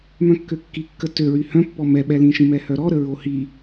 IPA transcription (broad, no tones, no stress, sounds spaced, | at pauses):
m œ̃ kː ø kː i kː ə t ø ɹ y h œ̃ pː ɔ m ɛ ɓ ɛ l ĩ ʃ ĩ m ɛ h œ ɾ ɔ ɾ ə ɹ o h i